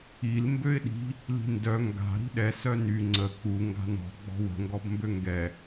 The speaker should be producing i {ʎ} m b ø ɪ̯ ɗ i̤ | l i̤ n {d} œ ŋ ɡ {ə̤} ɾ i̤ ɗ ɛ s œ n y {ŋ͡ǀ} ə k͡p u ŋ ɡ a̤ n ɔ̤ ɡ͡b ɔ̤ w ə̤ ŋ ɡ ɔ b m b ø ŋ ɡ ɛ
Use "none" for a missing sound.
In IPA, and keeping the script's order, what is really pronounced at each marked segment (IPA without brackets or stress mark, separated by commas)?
l, d, a̤, ŋ͡ǀ